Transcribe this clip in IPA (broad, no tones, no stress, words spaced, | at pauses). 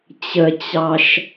t͡ɕət͡ɕɑʃ